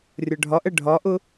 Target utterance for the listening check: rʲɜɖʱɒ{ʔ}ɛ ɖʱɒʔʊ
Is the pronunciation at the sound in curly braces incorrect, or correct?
correct